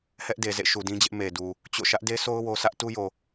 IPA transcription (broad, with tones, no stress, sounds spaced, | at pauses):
h ɛ˦ ʔ d e˨ z ḛ˦˨ ʃ u˨ d ĩ˦ d͡ʑ ɪ˦ ʔ m e˨ d u˨ | t͡ɕ o̰˦˨ ʃ ä˦ ʔ d e˦ s o˦ ʊ̯ w o˦ sʰ ä˦ ʔ t u˦ j o˨